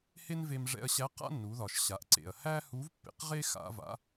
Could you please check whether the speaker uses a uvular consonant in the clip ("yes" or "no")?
yes